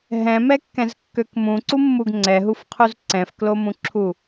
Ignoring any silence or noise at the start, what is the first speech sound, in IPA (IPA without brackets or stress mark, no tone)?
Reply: ɦ